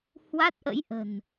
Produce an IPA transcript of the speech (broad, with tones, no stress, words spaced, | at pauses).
hwa˦˥t̚ʔə̰˧˥jʔə̤˨˩n